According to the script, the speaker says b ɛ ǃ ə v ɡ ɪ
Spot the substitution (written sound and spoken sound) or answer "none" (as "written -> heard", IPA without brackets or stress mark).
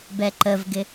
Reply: none